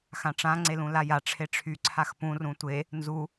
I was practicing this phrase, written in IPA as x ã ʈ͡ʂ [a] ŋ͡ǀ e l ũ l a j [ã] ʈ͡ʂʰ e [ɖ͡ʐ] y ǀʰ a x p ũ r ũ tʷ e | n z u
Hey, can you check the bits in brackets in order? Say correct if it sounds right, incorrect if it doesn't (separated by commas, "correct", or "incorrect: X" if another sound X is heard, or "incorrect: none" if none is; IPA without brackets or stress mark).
incorrect: ã, incorrect: a, incorrect: ʈ͡ʂʰ